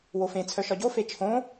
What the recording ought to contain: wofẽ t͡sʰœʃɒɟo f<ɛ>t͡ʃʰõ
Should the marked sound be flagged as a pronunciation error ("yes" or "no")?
yes